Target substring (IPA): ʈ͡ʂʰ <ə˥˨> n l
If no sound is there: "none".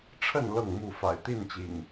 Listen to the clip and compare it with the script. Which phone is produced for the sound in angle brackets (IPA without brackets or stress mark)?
ə˥˨